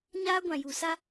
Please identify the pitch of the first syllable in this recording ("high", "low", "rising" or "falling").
high